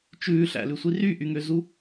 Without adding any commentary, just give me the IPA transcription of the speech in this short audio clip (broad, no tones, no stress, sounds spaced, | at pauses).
t͡ʃ ʉː ɬ æ̰ l ʉ sʷ i r y ʔ y ŋ ø z u